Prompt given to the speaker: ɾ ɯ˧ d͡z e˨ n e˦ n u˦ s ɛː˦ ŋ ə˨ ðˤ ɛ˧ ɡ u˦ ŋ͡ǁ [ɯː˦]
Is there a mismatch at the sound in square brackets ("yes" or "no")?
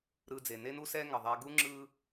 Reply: no